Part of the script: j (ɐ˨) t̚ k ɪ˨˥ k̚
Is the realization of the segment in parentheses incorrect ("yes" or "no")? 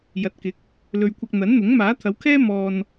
no